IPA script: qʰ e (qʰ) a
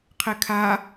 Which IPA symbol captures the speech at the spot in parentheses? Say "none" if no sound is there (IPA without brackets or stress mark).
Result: kʰ